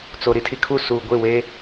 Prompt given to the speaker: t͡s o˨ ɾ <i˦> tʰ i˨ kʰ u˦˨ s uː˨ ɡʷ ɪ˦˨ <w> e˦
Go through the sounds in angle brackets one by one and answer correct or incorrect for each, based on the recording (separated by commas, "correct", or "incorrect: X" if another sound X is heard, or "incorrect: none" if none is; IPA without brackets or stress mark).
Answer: correct, correct